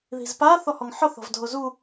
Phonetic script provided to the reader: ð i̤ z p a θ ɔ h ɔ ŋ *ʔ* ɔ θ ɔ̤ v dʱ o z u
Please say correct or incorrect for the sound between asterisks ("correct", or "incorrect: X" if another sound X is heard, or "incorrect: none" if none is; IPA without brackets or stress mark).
incorrect: ħ